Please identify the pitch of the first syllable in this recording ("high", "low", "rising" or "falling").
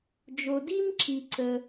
low